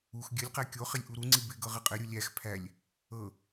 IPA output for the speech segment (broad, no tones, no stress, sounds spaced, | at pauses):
u x ɡʲ ɘ lʲ q æ kʲ o χ ɪ lʲ ʔ u ɾ u ŋ͡ǀ i b ɪ ɡ ɤ ʁ ɘ qʼ ɘ ɾʲ u lʲ æ x pʰ æ lʲ | ɤ